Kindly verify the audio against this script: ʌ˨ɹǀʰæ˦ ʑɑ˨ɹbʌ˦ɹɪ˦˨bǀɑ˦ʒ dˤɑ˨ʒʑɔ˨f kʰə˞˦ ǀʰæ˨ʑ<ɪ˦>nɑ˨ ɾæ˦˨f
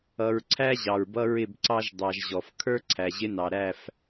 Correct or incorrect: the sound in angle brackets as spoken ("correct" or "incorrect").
correct